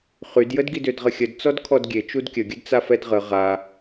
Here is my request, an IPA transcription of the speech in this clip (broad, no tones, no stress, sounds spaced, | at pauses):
χ y d j ə d ɡ i d ø d ʁ ə xʲ ə d t͡s ɔ d kʰ ɔ d ɡʲ e t͡ʃ u d kʲ ə ɡʲ ə d t͡s a f ɛ d ʁ ə ʁ a